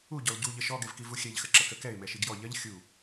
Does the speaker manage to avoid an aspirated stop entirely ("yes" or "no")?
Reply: yes